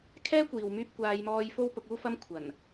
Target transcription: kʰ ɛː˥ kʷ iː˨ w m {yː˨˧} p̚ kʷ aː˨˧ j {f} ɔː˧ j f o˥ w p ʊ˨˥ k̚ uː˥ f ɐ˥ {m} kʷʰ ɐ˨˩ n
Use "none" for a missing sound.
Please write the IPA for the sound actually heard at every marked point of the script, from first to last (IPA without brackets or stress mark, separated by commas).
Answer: yː˧, m, m